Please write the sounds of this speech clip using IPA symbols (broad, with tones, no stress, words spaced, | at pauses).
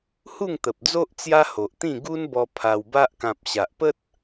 hu˥˧ŋt̪ə˨p̚d͡zo˦ʔ t͡sja˦ho˨ʔt̪ĩ˥˧ ɡu˦nbɔ˧ pʰa˧wba˦ʔ kã˨p̚ ɕa˨ʔpə˦t̚